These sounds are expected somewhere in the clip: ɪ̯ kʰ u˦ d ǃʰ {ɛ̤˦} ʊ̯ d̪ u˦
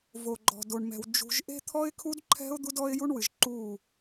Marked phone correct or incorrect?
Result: correct